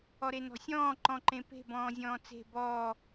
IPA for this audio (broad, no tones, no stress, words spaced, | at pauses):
ɔɾenɔ̤sʲɔ̃ː ǃɔ̃ǃẽpe̤ bɔ̃ːzʲɔ̃ːt͡se̤ bɔː